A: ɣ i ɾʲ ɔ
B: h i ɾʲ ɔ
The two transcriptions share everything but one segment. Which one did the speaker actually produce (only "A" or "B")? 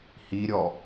B